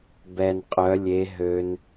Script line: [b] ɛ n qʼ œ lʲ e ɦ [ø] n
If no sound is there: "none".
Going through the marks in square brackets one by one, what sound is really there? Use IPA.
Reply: b, ø

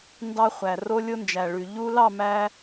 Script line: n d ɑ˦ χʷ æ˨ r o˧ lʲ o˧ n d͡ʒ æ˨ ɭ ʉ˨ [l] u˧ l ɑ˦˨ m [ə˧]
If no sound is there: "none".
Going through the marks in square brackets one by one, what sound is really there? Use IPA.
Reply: ʎ, æ˧

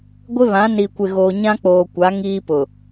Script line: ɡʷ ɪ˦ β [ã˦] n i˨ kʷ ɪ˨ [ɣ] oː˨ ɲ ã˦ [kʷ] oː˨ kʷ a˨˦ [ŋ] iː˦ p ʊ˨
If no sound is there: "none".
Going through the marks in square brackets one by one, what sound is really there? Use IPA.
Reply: ã˨˦, ɣ, k͡p, ŋ

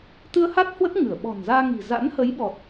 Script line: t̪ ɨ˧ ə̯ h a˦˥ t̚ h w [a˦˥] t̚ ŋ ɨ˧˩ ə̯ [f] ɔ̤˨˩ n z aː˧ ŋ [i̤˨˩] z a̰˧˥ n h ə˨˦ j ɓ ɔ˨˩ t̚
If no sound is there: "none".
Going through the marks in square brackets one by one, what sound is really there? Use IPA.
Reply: ə˦˥, ɓ, i̤˨˩

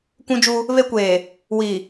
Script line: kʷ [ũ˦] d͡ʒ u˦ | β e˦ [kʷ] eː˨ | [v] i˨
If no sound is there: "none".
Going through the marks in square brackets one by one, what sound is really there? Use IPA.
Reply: ũ˦, kʷ, w

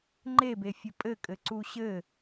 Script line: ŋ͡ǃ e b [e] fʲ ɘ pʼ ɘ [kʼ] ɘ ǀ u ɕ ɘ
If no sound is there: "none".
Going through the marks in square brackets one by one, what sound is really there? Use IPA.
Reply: e, kʼ

